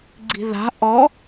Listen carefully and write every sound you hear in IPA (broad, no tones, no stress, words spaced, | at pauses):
ɡ͡ǀi̤ða̤ ʔɔ